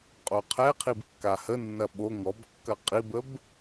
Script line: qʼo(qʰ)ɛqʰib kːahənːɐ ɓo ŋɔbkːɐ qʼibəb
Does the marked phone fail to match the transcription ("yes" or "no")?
no